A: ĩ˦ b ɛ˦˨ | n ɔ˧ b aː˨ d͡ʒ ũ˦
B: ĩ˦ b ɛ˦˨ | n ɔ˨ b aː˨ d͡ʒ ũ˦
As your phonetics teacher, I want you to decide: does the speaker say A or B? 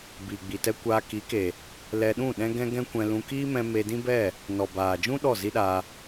B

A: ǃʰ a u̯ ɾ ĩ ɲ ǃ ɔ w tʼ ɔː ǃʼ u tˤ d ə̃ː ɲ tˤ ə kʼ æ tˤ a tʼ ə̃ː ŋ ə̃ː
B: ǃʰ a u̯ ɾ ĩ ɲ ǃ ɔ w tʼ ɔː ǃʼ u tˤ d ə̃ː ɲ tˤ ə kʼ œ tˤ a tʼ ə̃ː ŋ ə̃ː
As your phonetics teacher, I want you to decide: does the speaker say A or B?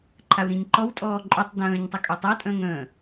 B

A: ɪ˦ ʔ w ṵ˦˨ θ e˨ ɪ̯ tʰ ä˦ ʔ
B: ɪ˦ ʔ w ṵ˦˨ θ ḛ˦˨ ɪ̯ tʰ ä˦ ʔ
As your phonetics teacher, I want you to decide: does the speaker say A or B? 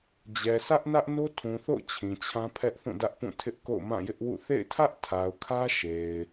B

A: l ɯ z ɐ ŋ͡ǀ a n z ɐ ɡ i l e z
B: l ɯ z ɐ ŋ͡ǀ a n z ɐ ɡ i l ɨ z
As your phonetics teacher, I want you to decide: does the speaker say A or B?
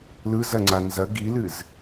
B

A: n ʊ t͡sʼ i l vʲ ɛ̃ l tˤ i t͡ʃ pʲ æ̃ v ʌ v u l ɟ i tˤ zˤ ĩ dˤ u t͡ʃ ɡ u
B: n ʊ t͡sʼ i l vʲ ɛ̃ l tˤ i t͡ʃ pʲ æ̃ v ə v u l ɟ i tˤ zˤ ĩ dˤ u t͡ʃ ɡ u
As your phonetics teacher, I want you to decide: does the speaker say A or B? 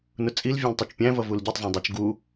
A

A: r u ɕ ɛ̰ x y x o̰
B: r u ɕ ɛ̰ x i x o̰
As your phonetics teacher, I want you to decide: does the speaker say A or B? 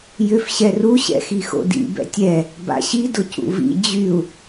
B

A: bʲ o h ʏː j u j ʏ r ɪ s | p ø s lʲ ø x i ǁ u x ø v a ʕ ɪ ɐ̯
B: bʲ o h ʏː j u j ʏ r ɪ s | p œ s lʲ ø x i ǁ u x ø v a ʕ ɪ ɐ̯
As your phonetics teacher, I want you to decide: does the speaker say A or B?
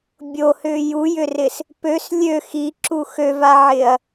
A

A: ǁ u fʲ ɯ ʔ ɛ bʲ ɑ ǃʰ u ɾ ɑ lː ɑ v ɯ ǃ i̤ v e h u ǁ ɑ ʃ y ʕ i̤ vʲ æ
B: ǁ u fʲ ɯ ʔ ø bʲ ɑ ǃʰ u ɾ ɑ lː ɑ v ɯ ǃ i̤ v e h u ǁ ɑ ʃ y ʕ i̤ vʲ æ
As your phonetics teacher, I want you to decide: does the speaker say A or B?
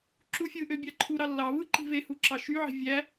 B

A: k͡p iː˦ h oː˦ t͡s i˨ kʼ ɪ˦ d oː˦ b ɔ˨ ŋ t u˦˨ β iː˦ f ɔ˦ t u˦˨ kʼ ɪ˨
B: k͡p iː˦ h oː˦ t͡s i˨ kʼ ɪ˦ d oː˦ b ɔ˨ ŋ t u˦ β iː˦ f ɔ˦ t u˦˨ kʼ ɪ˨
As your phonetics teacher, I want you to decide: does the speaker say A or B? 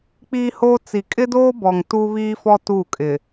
B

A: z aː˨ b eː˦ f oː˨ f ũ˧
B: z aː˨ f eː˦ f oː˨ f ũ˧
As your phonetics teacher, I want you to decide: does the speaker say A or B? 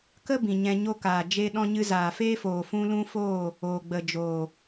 B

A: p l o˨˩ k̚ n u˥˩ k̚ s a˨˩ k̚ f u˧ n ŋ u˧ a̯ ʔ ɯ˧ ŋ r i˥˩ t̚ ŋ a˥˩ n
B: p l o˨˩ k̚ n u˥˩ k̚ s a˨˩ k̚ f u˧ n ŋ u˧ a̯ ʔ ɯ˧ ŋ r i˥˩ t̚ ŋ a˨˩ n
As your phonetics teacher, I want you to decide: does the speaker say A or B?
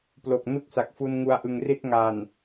B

